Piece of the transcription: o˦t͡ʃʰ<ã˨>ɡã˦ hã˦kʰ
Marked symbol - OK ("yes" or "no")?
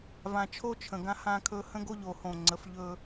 no